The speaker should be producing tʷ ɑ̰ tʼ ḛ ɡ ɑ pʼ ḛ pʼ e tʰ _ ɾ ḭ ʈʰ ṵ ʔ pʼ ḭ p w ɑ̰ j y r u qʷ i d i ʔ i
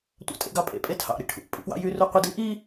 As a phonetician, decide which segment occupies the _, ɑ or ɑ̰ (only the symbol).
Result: ɑ̰